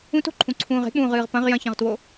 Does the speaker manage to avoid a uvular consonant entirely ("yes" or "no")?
no